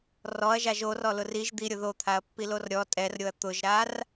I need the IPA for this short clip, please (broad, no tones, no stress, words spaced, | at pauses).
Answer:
rɔɐ̯ʒaʒ orɔlʊr iʒ d̪iɾʲʊ ðot̪ʰaɐ̯pːilor ɾʲɔ tʼɛrɾʲoɐ̯ t̪ʊʒɾar